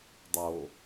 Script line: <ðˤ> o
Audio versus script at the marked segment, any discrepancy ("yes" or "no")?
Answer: yes